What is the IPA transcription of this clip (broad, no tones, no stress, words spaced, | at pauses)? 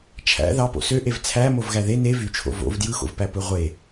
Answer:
t͡ʃʰæ̰ ðɑ po̰søʔev t͡sʰæmov ɣæðe ne vyt͡ʃʰo̰ vo̰v djɯxo̰vpæ pɯʁʷe